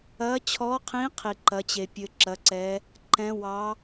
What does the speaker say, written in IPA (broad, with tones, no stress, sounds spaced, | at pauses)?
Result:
ɐ˧˥ t͡ɕʰ ɔ˧˥ qʰ ĩ˧˥ qʰ i˧ ǃ ɐ˧˥ t͡ɕ e˧ pʲ ɘ˧˥ ǁ ɐ˧˥ ǀ ɛ˧˥ | ǃ ɛ̃˧˥ w ɑ˧˥